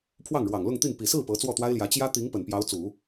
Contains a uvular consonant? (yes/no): no